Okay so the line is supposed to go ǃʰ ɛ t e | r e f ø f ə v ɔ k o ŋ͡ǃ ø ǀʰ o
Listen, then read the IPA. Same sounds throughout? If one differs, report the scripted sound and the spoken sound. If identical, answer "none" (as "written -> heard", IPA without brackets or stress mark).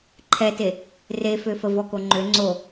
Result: ǀʰ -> ŋ͡ǀ